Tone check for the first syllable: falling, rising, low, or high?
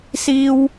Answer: high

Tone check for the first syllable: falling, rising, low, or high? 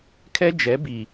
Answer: high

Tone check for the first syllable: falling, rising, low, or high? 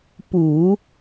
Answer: low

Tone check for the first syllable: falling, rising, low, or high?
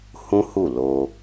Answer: high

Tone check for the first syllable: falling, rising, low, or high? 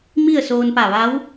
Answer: falling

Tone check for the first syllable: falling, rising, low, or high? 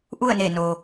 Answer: falling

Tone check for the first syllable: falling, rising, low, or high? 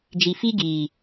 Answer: low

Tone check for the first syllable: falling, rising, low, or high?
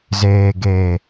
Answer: low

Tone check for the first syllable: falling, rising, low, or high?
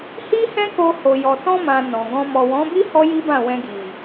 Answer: high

